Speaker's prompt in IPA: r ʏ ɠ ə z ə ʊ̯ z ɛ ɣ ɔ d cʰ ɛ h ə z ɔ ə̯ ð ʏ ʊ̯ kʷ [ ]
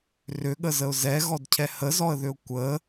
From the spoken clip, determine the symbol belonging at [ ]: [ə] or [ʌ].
ə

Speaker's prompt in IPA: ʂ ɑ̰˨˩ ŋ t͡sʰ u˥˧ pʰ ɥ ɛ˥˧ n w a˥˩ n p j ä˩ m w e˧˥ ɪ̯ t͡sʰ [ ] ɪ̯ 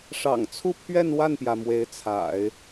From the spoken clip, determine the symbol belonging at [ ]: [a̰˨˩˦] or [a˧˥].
a̰˨˩˦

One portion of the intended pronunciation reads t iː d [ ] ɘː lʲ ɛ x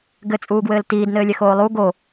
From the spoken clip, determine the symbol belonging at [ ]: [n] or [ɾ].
n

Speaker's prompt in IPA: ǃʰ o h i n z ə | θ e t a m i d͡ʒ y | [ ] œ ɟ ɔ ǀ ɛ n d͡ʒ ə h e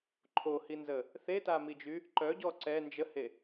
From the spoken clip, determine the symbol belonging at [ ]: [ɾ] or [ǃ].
ǃ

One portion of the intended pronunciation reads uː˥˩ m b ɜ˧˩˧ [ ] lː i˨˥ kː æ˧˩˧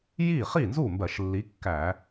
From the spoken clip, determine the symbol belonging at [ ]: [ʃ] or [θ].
ʃ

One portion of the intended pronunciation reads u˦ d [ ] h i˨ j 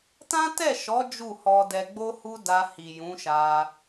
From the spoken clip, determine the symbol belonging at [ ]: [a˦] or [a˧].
a˧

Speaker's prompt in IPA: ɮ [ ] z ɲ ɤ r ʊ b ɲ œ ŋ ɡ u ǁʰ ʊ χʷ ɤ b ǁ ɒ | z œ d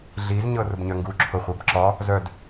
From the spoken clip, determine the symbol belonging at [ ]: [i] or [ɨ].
i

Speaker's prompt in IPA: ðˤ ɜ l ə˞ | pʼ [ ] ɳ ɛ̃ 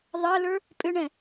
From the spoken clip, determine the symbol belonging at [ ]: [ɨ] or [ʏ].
ʏ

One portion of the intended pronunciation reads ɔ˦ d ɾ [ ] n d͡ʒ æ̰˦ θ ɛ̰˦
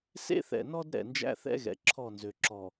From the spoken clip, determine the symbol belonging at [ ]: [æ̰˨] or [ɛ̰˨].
ɛ̰˨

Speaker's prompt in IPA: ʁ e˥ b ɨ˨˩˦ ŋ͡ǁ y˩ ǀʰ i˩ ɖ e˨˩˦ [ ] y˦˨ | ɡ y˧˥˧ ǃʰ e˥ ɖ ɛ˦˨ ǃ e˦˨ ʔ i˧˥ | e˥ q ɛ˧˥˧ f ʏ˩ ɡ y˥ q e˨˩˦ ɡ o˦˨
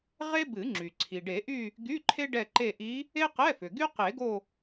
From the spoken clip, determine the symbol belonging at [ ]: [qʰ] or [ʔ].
ʔ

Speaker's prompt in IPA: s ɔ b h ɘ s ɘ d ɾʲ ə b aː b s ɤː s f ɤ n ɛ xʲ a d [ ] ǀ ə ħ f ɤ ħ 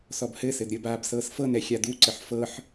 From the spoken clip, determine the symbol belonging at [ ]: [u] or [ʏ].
u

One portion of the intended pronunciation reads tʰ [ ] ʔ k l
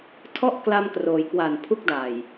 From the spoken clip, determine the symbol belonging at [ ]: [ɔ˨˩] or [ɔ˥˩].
ɔ˥˩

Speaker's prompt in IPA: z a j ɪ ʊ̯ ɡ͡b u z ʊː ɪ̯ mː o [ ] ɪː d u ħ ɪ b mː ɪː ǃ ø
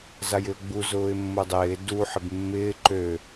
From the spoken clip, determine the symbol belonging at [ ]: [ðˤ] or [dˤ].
dˤ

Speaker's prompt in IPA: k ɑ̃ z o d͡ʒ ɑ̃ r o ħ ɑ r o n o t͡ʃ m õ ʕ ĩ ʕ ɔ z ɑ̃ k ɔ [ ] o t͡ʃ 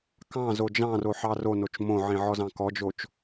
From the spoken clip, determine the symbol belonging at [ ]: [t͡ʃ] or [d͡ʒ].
d͡ʒ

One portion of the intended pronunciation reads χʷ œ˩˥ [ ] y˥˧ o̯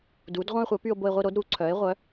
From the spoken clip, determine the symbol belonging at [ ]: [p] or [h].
p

